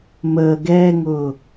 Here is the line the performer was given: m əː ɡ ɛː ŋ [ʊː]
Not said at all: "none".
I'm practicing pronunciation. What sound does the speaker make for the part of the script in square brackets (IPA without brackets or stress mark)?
ʊː